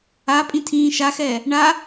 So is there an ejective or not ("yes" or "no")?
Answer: yes